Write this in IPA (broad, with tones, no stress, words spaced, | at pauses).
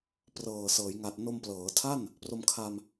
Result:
prɤː˨˩sɤː˩˦jŋa˨˩t̚ no˧mplɤː˩˦tʰa˥˩n | pro˧mkʰa˧m